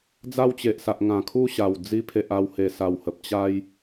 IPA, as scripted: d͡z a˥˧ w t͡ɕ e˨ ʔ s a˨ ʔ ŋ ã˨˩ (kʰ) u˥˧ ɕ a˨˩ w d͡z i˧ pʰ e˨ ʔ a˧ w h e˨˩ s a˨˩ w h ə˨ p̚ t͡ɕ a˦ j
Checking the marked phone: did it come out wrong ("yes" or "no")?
no